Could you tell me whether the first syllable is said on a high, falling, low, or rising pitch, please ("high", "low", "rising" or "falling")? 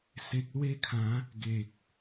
low